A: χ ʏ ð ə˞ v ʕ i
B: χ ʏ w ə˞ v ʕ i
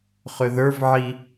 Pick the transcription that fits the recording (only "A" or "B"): A